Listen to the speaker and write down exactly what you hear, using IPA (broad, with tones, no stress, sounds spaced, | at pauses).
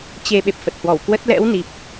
t͡ɕ e˧ ɓ e˨˩ p̚ f ə˨˩ t̚ h w ɔ˧˩ w k w ə˦˥ t̚ l ɛ̰˧˥ w n i˨˩ p̚